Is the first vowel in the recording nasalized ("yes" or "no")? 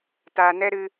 no